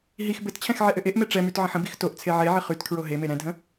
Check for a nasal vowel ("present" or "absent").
present